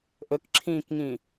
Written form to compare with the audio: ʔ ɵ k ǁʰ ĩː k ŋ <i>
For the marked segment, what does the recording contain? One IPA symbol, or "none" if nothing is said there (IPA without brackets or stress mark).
ĩ